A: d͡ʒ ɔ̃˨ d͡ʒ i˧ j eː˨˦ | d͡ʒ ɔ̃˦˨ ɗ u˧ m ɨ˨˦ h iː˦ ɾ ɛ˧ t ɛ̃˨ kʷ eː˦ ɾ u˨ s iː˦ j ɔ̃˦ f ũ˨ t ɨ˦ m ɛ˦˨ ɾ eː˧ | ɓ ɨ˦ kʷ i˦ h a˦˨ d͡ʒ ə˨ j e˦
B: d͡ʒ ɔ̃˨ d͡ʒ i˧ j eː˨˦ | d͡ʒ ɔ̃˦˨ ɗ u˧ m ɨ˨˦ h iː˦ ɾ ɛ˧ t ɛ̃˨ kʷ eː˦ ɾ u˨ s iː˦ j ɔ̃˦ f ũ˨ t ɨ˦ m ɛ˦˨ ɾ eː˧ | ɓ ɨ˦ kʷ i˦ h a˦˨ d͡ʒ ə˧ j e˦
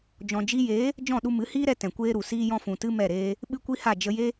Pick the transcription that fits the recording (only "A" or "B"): B